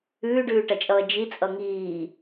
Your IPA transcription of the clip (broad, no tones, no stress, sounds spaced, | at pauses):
ʉː ɖ ʉː ʈ ɐ t͡ʃʼ ʌː d͡ʒ i t͡sʼ ʌ ŋ iː